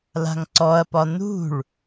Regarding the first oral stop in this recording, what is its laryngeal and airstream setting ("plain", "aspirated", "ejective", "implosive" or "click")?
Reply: click